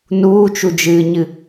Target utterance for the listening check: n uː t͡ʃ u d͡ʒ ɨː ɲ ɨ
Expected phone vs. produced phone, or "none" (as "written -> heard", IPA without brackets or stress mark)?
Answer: none